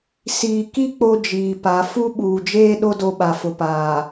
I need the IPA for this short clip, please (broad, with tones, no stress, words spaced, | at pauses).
siː˨ki˦ k͡po˦d͡ʒiː˨pa˨˦ fu˦ɓuː˨d͡ʒeː˦ɗo˦ do˦ɓa˨ fʊ˨paː˨